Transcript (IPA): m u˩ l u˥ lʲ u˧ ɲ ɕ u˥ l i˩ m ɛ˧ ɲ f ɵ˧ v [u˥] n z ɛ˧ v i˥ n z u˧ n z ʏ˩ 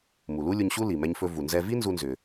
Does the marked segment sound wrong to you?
yes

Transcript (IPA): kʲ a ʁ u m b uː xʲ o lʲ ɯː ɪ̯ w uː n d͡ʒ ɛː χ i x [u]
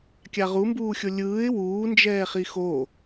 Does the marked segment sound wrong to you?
yes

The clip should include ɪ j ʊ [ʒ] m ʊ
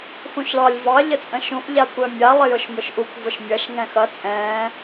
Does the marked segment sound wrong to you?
yes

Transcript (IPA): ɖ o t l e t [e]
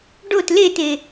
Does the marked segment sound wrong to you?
no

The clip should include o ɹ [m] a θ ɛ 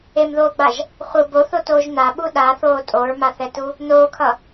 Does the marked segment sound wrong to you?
no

